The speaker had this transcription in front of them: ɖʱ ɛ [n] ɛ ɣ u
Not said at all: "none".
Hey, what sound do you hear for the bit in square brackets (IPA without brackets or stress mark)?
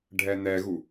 n